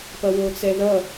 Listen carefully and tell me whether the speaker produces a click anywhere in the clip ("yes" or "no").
no